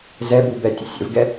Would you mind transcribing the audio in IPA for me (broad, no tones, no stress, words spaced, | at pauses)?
zɛbu bɛtʲə̰sʲə̰vɡɛ